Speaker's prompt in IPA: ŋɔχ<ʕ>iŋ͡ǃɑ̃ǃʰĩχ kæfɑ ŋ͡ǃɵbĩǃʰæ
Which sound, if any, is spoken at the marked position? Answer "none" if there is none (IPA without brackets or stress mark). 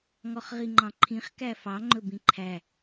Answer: ʁ